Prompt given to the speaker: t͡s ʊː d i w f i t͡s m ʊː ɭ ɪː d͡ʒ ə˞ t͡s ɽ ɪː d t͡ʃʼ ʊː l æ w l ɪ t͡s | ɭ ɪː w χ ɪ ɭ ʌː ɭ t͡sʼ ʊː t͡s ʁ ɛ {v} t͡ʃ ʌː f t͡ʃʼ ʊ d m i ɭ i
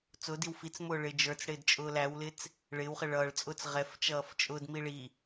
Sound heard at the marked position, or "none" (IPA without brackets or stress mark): f